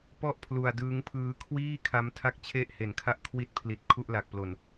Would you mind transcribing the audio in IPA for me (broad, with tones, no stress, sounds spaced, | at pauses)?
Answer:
p ɔ˥˩ ʔ pʰ l u˧ a̯ d ɯː˦˥ ŋ pʰ ɯː˦˥ kʰ w iː˥˩ kʰ a˦˥ m tʰ a˥˩ k̚ t͡ɕʰ e˥˩ ʔ h e˨˩ n kʰ a˥˩ ʔ kʰ w i˦˥ t̚ pʰ l i˨˩ t̚ kʰ u˥˩ ʔ l a˨˩ k̚ p l o˨˩ n